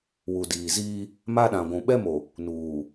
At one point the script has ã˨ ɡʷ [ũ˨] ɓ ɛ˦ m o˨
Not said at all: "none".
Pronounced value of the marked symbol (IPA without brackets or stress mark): ũ˨